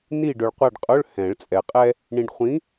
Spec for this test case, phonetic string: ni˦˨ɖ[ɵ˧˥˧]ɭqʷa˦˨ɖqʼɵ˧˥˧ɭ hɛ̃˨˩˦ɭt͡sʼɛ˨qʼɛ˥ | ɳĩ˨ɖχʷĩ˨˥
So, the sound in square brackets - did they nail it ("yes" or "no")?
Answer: no